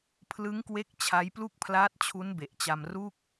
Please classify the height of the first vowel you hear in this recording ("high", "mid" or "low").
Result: high